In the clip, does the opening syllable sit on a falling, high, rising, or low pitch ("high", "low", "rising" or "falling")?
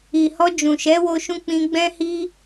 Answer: low